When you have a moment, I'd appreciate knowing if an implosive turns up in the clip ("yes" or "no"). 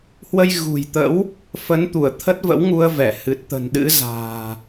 yes